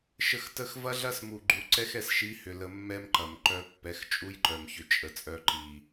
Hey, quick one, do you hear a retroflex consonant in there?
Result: no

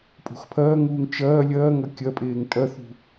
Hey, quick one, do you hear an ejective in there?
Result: yes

